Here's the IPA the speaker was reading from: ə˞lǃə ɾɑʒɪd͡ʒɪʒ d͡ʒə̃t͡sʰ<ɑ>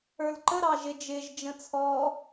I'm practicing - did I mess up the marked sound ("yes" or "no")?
yes